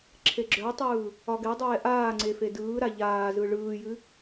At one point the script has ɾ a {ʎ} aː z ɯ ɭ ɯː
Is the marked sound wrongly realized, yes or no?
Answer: no